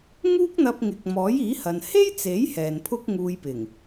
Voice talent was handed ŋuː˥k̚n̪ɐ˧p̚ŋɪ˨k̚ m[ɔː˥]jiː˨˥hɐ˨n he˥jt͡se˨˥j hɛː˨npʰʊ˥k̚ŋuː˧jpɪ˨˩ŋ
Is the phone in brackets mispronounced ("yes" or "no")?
yes